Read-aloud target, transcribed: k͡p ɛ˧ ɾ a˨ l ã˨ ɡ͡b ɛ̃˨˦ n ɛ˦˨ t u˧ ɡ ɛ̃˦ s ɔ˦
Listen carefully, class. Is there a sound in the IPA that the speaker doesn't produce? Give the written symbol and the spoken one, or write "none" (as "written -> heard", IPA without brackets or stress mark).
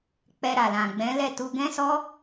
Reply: n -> l